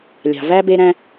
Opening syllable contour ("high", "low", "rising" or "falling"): low